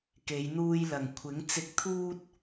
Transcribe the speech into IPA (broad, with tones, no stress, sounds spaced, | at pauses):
k e˨˧ j n̪ uː˧ j l ɐ˨ ŋ kʷʰ ɪ˨˥ ŋ t͡s ɪ˨˥ k̚ t̪ʰ uː˧ t̚